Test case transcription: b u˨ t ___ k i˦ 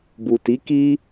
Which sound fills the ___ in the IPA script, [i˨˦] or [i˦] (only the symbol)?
i˨˦